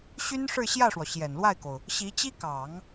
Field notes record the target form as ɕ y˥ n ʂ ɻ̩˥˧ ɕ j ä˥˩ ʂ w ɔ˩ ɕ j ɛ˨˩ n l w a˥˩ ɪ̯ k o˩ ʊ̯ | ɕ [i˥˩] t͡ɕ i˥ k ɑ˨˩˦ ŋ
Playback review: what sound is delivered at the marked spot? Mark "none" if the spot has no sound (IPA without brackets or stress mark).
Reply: i˧˥